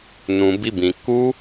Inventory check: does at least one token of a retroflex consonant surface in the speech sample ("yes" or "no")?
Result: no